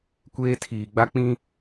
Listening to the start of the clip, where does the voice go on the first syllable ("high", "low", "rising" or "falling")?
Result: high